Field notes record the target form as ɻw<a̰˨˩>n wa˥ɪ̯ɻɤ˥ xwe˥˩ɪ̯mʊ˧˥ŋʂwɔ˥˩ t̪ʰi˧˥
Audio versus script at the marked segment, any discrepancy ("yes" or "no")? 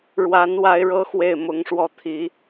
yes